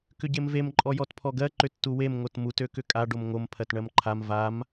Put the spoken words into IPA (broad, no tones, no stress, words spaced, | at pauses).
kʏɟemvem ǃʼɔjɔtpʰɔɡɜ ǃʏtːuwem ŋotmut økʏkʼa ɖomŋom pʰɜtɳɜmǃʰam vam